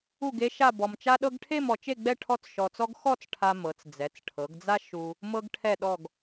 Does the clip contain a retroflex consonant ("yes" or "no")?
yes